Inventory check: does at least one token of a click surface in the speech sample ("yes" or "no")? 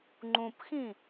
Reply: yes